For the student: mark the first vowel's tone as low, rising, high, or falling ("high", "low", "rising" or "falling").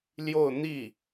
falling